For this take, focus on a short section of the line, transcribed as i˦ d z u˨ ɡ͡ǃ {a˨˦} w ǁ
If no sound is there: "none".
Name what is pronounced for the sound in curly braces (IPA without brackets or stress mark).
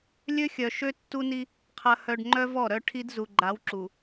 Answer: a˨˦